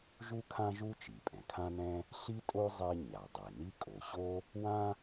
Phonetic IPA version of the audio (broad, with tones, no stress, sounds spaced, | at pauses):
ʒ u˥ kʰ ã˥ ʒ u˥ t͡ʃ i˩ pʼ ɛ̃˩ kʰ ã˥ n ɛ̃˥ | ɬ i˥ tʼ o˥ zˤ e˥ ɲ a˩ dˤ e˩ n i˥ kʼ o˩ ɕ o˥ | w ã˥